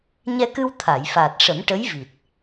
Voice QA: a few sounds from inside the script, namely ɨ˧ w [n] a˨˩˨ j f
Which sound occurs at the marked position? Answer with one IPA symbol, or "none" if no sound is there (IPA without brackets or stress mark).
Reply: t̪ʰ